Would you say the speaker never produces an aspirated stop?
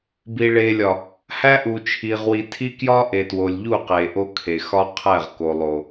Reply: no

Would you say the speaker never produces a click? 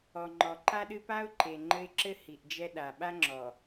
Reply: no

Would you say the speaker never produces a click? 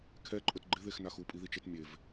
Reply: no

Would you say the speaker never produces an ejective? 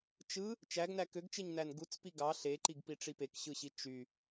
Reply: yes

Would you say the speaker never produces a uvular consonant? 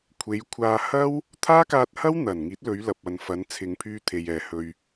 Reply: yes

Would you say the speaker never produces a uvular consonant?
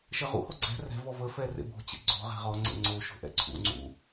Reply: no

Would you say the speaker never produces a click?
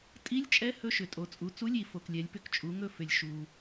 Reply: yes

